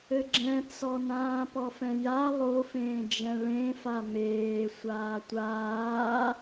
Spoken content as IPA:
ɘ ɡ͡ǁ ɛ̃ t͡s ɔ n ãː p ɔ f ɛ̃ j a lˠ o f ẽː d͡ʒ ɛ̃ ɭ ẽ f a m eː sʷ aː tʷ aː

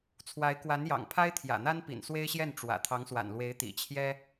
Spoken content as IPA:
t͡sʰ w a˧˥ ɪ̯ k w a˧˥ n j ɑ̰˨˩ ŋ pʰ a˥ ɪ̯ t̪ʰ j ä̰˨˩ n̪ a˥ n p ḭ˨˩ n s w e˥ ɪ̯ ɕ j ɛ˥˩ n ʈ͡ʂ w ä̰˨˩ t̪ʰ ɑ˧˥ ŋ s w a̰˨˩ n l w e˧˥ ɪ̯ t̪ ḭ˨˩ t͡ɕʰ j ɛ˥

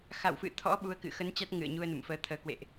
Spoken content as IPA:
x a̰˧˨ w f ɨ̰˧˨ t̪ʰ ɔ̰˧˥ ɓ u˨˦ ə̯ k ɨ̰˧˨ x ə˨˦ n t͡ɕ a˦˥ t̚ ŋ ɨ̰˧˨ ə̯ ɲ u˧ ə̯ n ṵ˧˨ m f əː˨˦ t̪ʰ əː˨˦ k w ḛ˧˨ ʔ

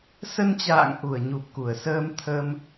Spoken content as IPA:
s ə˧ n t͡ɕ a̰ː˧˨ ŋ ʔ u˧˩ ə̯ ɲ u˨˩ p̚ k u˧˩ ə̯ s əː˧ m t̪ʰ ə˧ m

